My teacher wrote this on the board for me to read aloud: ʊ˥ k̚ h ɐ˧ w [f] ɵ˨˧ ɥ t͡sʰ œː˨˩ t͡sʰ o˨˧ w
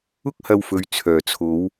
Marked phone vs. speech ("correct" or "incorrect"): correct